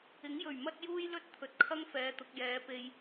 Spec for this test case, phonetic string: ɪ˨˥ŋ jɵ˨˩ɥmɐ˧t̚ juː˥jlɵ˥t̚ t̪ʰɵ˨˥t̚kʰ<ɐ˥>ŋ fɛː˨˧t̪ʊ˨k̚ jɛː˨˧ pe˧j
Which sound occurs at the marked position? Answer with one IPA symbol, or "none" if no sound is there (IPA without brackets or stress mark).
ɐ˥